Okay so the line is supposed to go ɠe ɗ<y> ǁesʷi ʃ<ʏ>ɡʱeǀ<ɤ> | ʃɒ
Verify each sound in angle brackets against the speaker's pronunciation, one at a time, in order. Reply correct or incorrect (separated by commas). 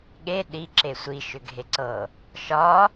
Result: incorrect, correct, correct